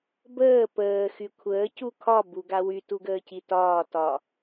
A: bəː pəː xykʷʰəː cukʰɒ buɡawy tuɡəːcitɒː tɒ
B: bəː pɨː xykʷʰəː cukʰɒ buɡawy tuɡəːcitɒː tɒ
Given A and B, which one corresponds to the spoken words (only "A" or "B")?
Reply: A